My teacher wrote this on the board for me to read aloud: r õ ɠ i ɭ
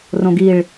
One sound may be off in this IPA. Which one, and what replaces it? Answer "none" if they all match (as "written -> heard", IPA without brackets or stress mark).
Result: ɠ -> ɡ